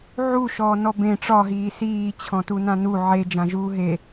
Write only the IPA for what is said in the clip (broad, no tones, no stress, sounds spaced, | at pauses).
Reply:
ʕ u ʃ ɔː n ɔ b ẽ ʈ͡ʂ ɒ ɦ iː s iː t͡ɕʰ ɔ̃ t u n ã n u ʕ e d͡ʒ ã ʒ uː ɦ e